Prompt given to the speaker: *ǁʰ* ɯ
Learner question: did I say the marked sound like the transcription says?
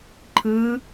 no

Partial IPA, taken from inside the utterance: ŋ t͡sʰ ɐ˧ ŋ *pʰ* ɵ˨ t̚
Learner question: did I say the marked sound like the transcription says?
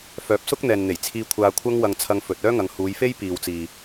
no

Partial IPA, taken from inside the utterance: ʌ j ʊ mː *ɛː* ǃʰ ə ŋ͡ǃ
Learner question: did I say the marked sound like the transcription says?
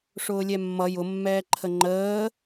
yes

